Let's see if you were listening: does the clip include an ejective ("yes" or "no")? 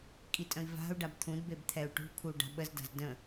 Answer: yes